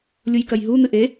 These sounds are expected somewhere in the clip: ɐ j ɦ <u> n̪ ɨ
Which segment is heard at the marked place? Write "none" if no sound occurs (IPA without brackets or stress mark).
u